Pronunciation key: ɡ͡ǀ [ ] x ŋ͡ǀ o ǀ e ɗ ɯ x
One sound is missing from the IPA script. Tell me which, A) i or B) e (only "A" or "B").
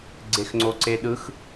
B